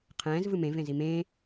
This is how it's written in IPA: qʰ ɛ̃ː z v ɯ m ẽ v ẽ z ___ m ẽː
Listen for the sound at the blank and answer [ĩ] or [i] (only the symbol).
i